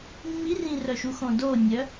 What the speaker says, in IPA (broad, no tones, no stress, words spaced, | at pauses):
mːirĩrœʃu xõdonʲœ